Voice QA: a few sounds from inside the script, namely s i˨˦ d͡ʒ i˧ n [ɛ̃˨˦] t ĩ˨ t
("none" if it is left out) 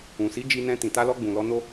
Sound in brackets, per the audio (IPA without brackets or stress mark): ɛ̃˧